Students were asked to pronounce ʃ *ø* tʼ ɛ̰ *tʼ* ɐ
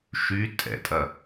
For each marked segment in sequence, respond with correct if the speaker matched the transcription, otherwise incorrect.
incorrect: y, correct

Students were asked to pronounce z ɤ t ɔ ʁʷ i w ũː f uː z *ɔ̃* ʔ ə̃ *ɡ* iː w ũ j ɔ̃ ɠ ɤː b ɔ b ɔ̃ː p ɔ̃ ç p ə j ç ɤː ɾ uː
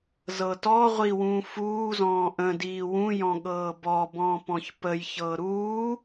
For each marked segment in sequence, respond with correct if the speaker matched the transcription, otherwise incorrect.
incorrect: ɔ̃ː, incorrect: d

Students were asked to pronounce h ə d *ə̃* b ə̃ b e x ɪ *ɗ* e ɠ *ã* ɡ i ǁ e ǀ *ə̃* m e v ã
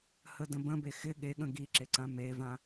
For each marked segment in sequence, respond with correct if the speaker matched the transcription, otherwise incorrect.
correct, incorrect: ɠ, incorrect: ə̃, incorrect: ã

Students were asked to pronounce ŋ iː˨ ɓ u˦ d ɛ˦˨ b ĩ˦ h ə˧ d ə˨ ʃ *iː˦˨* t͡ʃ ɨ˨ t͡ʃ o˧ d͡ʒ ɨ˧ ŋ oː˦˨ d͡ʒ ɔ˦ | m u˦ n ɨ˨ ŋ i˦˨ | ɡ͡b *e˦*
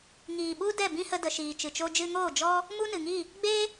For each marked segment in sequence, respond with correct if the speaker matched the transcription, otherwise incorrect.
incorrect: iː˨, correct

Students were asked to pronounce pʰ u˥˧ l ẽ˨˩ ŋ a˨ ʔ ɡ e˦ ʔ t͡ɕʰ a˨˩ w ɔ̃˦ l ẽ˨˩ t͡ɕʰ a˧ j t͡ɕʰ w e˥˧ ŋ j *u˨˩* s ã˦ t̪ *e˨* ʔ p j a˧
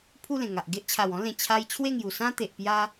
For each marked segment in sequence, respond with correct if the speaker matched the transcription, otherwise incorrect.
correct, correct

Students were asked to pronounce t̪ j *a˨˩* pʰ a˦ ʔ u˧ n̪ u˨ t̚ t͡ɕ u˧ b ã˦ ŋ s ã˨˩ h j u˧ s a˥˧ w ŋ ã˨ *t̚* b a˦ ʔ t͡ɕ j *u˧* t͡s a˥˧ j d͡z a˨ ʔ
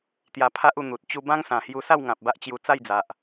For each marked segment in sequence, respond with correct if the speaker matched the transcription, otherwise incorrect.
incorrect: a˧, incorrect: p̚, correct

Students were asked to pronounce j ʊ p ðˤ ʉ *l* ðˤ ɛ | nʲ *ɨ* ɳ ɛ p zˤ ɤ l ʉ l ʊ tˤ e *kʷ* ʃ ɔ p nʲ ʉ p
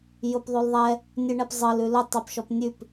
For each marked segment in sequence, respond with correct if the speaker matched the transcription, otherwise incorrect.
correct, correct, incorrect: p

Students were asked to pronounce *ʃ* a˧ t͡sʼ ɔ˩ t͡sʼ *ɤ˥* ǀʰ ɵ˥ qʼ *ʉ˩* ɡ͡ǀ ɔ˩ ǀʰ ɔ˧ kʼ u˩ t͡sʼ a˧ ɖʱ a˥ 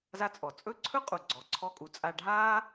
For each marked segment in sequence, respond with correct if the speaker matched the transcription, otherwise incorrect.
incorrect: z, incorrect: ɵ˥, incorrect: u˩

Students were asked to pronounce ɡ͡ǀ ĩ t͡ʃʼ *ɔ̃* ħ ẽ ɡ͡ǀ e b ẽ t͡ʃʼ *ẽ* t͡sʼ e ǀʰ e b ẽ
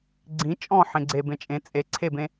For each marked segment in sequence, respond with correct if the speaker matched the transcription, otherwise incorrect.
correct, correct

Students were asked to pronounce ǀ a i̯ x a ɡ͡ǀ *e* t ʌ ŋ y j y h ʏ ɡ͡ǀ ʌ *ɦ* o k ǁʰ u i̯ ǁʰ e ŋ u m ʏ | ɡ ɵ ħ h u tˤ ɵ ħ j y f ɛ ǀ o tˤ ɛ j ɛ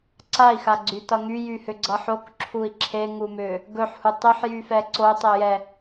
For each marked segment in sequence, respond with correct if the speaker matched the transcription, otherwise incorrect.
incorrect: y, incorrect: ħ

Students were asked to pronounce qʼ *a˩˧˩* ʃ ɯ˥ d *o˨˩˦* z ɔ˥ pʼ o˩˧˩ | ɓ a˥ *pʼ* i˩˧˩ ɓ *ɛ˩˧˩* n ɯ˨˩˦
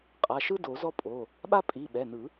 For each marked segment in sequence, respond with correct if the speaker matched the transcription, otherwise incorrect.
correct, correct, correct, correct

